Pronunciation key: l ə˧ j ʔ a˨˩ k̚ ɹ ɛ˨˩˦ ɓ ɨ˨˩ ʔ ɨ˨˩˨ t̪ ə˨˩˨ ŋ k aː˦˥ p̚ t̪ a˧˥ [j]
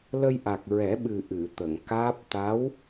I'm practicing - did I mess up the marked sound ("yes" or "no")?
yes